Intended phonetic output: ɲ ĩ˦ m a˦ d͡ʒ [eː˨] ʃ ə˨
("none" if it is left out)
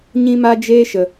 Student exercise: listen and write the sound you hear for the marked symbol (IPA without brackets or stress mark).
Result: eː˦